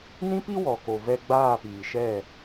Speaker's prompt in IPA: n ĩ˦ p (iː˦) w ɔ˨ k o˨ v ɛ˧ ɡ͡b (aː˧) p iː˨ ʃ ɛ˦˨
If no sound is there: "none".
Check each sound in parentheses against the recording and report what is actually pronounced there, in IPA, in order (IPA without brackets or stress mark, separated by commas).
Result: i˦, aː˦˨